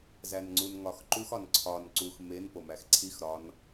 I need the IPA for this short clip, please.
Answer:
z æ n ŋ͡ǀ u n ŋ ɒ x ǃ u x ɒ n ǀʰ ɒ n ǀ u x m e n p o m æ x ǀʰ i x ɾ ɒ n

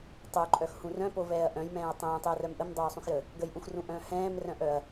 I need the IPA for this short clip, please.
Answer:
tˤ o ǃʼ œ x h ũ r œ̃ p o v ɛː ɐ̯ ʔ œ̃ j m ɛ̃ː ɐ̯ tˤ ɛ̃ː tˤ ɛ ɐ̯ r œ m ʔ ə m dˤ oː sˤ ũ x j ə | ɡ ə j ʔ ũ x r ũ ʔ œ̃ː h ɛ̃ː m r œ̃ ʔ œ ɐ̯

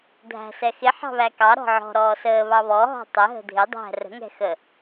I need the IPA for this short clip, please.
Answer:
dʱ æ̤ s ɛ x ɪ ħ ɑ̤ β æ k ɑ ɾ ɔ̤ ʕ ɔ̤ ɾ ɔː s əː β ɑ β ɔ ɦ ɔ̤ tˤ ə ɦ ə̤ dʱ ɪ dˤ æ̤ r ə̤ ŋ ɛ̤ x ə

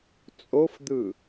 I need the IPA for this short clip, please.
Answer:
t͡sʼ o f d̪ ɯ

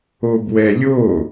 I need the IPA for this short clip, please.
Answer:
o b w ɛ lʲ o

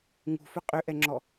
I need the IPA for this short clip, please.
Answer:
ŋ ṳ f ʏ qʼ ʏ ʔ ɛ ŋ͡ǁ ɔ

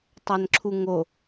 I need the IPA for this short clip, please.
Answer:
tˤ æ n ǁʰ u ŋ o

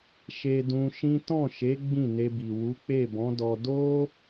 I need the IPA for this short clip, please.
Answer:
ʃ e˧ d ũ˧ ʃ ĩ˦ t ɔ̃˦˨ ʃ e˨˦ ɡ͡b ĩ˦˨ n e˧ b i˨ w u˨˦ k͡p e˦˨ b ɔ̃˨˦ d ɔ˧ d o˦

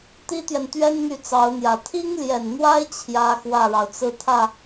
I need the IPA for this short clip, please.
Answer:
t̪ i˥ t̪ j ɛ˨ n t̪ ɥ ɛ˥ n n̪ y˥˩ t͡s ɑ˧˥ ʊ̯ n̪ j ä˨˩ t̪ʰ i˥ ŋ l j ɛ˨˩ n n̪ w a˥ ɪ̯ t͡ɕʰ j ä˥ x w ä˥˩ ɻ ɑ˩ ʊ̯ t͡s ɹ̩˥˧ t̪ʰ ä˥˩

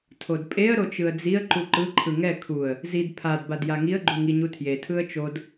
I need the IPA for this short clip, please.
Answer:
tʰ o d pʼ e ə̯ ɾ o t͡ʃ ɯ ə̯ d͡z i ə̯ ǃ u ǃ ɯ ǃʰ ɯ ŋ ɛ kʰ u ə̯ | z i d pʰ a d b a d j a ŋ i ə̯ ɡ͡ǃ u ŋ i ɲ u tʰ j e tʰ ɯ ə̯ t͡ʃ o d

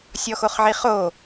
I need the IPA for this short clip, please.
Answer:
sʲ ɔ x o χ ʕ i χ o

